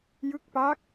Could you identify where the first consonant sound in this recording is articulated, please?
palatal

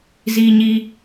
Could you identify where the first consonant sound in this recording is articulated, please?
alveolar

